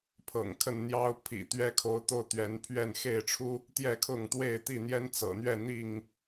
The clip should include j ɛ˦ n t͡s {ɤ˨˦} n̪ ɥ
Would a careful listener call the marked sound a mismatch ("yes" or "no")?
yes